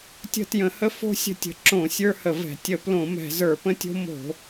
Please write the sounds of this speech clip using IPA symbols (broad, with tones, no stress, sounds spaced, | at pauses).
tʲ ə̤˥ t j ə̃˧˩˧ h ə˥ f o̤˥ sʲ ə̤˥ tʲ ə̤˧˩˧ ǁ õ˧˩˧ sʲ ə˞˥ h ə˧˩˧ v ɛ̤˧˩˧ tʲ ə˧˩˧ p l õ˧˩˧ m ɛ̤˧˩˧ z ə˞˧˩˧ p ə̃˥ tʲ o̤˥ m o̤˧˩˧